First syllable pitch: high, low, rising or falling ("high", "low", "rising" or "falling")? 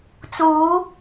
rising